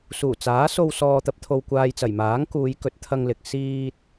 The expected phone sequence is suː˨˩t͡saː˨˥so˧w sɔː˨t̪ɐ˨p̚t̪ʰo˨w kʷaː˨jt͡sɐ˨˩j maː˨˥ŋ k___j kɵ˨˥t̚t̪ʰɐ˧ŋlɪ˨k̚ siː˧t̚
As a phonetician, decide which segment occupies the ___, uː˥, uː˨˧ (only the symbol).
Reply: uː˨˧